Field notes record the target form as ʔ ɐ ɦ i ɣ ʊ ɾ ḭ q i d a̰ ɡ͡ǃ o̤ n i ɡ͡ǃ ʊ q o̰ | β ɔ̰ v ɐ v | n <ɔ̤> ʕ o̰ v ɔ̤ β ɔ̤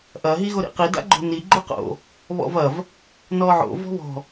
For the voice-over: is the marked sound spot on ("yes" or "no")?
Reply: no